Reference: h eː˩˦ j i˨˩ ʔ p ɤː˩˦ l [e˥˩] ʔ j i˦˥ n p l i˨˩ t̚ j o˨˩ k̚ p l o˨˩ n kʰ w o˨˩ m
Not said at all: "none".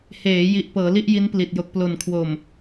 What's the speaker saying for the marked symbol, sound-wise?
i˥˩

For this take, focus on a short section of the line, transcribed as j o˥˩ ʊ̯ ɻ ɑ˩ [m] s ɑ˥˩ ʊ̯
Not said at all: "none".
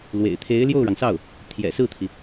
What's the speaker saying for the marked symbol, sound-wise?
ŋ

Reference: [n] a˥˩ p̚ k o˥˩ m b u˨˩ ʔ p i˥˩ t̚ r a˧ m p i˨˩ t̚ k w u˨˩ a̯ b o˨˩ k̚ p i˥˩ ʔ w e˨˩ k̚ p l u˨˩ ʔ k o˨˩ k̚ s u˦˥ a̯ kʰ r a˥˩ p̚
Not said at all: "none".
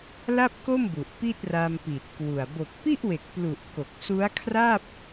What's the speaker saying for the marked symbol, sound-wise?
l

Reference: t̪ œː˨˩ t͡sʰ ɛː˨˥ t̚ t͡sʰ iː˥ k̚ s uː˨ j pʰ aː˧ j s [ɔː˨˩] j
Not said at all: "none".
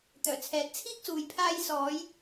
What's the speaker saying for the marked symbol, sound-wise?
ɔː˨˧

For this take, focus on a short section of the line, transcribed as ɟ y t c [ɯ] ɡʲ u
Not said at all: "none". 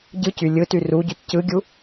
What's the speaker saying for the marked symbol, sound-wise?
ɯ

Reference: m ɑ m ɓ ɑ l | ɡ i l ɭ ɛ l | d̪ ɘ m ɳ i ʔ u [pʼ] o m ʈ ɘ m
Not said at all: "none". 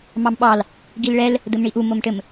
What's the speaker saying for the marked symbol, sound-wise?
m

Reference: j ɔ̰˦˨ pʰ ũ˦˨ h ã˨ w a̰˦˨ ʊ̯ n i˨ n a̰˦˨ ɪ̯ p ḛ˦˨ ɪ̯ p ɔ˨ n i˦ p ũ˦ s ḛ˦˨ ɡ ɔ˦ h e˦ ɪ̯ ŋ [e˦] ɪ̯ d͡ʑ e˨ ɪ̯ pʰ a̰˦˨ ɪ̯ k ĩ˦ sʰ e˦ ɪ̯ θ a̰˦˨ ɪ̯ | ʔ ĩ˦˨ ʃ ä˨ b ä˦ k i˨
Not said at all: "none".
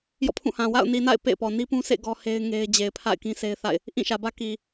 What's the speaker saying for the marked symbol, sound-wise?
e˦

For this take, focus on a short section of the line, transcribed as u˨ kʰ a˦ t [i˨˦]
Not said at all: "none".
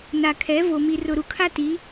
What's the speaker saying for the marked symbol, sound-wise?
i˨˦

